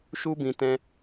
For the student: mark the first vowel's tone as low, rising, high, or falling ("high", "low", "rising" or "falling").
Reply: high